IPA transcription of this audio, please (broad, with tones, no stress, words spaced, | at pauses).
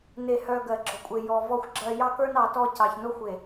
ne˨hœ˨ ɡɜ˨ɡ͡ǁɔ˨kʷʼe˨jɔ˨ vɔ˨xʷɡ͡ǁɜ˨ jɑ˦kə˞˦nɑ˨tɔ˦˨ cɑ˨çno˦xʷ e˨